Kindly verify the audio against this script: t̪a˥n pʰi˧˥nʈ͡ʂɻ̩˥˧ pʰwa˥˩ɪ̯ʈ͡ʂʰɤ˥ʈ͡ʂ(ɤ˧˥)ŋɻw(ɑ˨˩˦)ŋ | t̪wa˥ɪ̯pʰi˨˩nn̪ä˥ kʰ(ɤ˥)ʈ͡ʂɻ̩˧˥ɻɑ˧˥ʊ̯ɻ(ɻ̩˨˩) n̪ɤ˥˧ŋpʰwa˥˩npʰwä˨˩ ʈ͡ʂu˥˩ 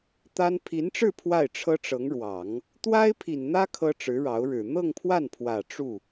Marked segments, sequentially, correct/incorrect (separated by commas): correct, correct, correct, correct